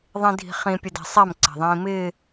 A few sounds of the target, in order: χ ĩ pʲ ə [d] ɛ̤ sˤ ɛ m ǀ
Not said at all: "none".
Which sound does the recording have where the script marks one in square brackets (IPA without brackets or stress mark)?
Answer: d